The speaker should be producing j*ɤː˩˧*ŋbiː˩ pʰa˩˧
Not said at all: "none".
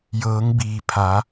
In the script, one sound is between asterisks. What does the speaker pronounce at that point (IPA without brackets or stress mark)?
ɤː˩˧